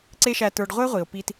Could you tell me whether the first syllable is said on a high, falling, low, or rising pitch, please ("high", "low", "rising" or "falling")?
high